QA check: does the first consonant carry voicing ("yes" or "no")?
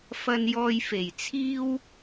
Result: no